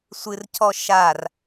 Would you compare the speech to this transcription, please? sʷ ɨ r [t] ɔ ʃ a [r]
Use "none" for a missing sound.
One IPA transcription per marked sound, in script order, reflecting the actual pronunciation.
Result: cʰ, r

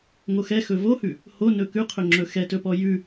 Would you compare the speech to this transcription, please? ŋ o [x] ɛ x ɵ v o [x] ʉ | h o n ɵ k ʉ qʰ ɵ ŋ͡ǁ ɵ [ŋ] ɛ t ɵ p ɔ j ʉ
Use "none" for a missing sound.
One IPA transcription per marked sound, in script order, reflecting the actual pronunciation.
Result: x, h, x

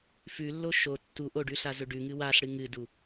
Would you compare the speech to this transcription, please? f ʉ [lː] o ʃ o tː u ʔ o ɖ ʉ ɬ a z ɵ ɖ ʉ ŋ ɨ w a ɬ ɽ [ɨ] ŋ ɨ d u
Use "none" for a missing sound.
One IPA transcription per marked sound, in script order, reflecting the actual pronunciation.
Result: lː, ɨ

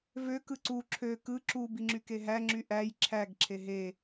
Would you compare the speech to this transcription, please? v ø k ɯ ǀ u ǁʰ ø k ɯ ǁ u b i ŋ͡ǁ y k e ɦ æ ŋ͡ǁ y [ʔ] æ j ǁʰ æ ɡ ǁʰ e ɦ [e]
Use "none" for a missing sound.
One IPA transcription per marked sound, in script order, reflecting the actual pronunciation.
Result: ʔ, e

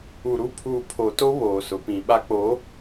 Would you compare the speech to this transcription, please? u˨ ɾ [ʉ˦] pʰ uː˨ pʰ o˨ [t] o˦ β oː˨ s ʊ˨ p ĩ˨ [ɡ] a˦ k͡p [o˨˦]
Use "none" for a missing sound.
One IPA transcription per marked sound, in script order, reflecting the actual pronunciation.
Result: u˦, t, ɓ, o˨˦

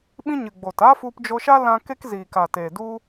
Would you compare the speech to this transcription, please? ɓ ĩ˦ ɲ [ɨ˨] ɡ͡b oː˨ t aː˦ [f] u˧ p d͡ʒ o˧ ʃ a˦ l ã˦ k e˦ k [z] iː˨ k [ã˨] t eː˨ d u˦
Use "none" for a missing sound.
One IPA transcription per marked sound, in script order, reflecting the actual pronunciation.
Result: ɨ˨, f, z, a˨

